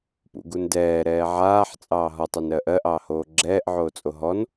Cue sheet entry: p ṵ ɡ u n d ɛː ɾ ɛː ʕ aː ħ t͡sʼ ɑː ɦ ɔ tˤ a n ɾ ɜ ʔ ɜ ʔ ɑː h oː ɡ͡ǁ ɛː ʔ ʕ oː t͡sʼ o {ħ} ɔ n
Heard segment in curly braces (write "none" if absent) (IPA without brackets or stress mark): ɦ